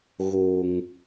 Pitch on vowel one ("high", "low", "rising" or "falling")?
low